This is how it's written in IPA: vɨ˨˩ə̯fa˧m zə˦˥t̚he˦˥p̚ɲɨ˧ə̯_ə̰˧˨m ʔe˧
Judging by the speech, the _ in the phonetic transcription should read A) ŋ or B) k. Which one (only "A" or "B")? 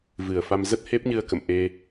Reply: B